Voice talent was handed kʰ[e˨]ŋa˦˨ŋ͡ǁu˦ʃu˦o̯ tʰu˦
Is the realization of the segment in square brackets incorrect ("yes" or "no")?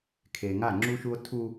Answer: no